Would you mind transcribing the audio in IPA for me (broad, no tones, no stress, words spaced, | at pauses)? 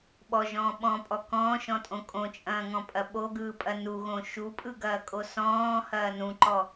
ɓɔʒɔ̃ː ɓɔ̃pʼɔ kɔ̃ːʃɔ̃tʼõ kʼõt͡ʃʼɐ̃ːŋɔ̃pʼɐ ɓoɡɯːpʼɐ nuɣõ ʃupʼɯɡɐːkʼo sɔ̃ːhɐː nũǃɔ